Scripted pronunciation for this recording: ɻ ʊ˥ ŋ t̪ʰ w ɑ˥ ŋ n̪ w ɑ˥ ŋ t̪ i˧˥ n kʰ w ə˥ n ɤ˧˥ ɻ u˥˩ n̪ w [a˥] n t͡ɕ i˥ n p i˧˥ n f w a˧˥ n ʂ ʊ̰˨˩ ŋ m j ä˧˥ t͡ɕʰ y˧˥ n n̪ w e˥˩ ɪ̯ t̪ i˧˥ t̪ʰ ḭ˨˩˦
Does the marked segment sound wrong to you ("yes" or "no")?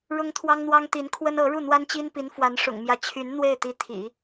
no